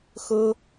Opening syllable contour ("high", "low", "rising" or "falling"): high